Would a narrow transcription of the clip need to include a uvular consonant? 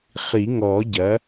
yes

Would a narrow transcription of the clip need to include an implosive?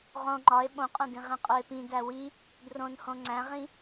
yes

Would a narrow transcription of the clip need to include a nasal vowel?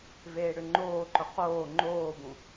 yes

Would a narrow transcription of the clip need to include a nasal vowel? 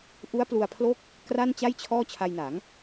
no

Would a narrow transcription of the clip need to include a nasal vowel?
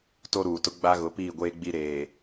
no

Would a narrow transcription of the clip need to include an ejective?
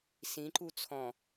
no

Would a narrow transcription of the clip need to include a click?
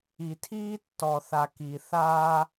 no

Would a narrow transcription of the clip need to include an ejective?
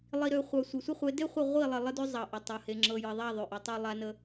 no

